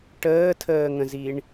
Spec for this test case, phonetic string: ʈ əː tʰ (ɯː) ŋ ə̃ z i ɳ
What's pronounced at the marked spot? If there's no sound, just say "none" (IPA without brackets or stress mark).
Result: əː